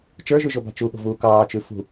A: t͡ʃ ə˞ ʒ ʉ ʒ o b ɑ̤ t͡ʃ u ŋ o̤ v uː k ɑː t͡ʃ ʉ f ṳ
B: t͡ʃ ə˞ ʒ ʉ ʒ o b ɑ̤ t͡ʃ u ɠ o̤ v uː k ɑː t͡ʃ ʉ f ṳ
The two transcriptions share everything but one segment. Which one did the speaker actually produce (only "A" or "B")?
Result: B